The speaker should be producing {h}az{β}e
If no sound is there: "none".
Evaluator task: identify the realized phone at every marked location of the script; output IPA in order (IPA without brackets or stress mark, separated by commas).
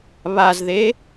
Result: β, ð